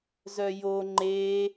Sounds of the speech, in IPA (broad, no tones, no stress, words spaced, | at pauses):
zœjo ŋ͡ǃe